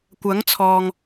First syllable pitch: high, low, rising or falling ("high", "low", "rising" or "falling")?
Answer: rising